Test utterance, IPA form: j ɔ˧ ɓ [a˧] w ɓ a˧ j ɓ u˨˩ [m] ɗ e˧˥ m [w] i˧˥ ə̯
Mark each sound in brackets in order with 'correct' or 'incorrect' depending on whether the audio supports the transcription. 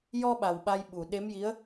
incorrect, incorrect, incorrect

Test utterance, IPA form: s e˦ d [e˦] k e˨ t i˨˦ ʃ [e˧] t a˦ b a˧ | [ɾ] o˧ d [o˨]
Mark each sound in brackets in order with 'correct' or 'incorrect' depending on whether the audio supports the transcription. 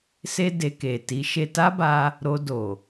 incorrect, correct, correct, correct

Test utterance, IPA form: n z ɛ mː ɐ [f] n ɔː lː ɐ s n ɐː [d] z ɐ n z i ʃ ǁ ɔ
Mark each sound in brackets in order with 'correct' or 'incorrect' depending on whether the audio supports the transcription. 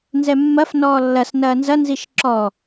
correct, incorrect

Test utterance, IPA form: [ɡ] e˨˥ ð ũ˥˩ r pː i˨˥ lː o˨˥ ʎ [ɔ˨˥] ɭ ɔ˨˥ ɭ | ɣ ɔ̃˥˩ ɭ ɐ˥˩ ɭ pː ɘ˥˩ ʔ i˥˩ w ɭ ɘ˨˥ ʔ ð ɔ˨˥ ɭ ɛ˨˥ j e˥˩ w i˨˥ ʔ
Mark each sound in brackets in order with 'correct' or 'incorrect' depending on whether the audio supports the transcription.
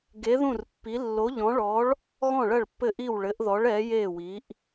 correct, incorrect

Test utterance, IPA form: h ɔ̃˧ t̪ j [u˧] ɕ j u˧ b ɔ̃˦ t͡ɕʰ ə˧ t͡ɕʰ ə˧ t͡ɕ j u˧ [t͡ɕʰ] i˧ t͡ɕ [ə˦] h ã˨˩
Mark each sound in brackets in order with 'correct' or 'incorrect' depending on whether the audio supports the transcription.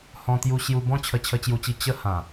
correct, incorrect, correct

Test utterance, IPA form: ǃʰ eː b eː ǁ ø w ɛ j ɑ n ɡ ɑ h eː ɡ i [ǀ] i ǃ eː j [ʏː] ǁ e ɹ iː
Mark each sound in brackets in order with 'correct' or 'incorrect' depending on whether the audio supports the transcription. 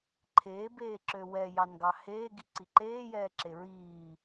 correct, incorrect

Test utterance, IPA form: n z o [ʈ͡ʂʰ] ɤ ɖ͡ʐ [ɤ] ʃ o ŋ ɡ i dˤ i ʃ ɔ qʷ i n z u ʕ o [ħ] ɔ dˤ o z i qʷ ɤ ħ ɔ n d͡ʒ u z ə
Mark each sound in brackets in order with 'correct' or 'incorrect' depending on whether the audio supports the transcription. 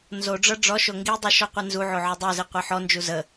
incorrect, incorrect, incorrect

